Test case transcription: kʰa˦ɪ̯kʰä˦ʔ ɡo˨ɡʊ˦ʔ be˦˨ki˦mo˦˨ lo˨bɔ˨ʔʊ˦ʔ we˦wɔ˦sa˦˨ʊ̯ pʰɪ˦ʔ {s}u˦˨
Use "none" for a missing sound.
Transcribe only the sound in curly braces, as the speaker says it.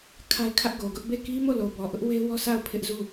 z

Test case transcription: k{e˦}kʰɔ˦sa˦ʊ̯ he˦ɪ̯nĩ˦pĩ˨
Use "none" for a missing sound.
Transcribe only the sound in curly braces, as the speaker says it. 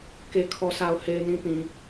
e˦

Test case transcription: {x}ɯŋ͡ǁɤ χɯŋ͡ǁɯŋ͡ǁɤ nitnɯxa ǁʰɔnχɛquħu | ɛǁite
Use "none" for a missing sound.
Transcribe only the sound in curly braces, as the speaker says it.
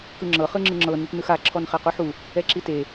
k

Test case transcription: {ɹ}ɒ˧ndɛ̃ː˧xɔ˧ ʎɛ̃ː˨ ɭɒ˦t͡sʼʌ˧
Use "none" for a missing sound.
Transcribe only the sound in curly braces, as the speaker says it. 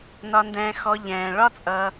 n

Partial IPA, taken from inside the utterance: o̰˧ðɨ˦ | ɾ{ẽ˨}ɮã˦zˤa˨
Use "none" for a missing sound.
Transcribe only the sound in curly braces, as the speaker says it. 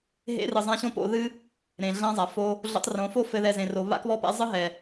ẽ˨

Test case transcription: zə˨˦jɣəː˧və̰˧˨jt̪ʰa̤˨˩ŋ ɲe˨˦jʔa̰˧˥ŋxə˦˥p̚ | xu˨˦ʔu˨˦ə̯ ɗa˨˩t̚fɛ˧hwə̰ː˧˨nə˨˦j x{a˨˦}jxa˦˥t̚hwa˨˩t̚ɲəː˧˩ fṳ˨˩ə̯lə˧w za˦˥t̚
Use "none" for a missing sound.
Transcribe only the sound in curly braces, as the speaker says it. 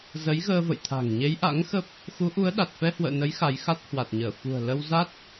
a˨˦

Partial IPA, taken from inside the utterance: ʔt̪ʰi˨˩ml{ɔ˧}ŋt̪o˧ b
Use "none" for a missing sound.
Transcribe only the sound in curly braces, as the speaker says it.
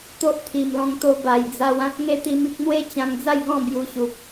ɔ̃˧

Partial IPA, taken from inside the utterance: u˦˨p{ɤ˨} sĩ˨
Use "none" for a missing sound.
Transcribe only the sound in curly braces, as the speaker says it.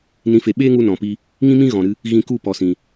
ɔ˨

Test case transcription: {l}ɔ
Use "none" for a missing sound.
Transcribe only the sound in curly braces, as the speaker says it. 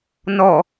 n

